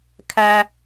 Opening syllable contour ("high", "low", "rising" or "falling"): high